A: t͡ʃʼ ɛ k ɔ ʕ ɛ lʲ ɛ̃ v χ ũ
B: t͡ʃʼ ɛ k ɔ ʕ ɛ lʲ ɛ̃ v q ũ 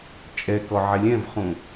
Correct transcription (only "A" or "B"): A